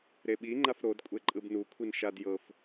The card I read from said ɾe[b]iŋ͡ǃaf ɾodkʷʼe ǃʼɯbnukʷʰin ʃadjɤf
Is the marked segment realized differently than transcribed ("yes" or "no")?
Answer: yes